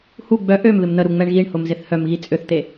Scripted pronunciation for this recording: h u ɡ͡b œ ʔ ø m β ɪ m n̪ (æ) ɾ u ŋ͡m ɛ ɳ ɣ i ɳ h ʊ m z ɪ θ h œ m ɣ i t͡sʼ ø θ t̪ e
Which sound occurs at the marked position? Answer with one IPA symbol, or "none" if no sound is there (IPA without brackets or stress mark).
ə